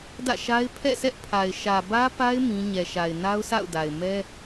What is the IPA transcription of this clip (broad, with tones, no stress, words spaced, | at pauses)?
dä̰˦˨ʃa˦ɪ̯ pʰɛ̰˦˨sɛ˦ʔpʰa˨ɪ̯ ʃä˨bä˦pa˦ɪ̯ mĩ˦ ɲɛ˨ʃa˨ɪ̯ na˦ʊ̯sa̰˦˨ʊ̯da˨ɪ̯ mɛ˦